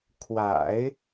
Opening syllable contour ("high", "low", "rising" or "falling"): low